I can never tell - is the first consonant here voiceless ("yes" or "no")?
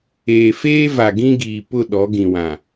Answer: yes